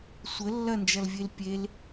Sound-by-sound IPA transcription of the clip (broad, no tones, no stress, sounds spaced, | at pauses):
sʷ ə lː ɐ n d͡ʒ ɐ l vʲ e l pʲ e l